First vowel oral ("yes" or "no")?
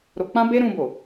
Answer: yes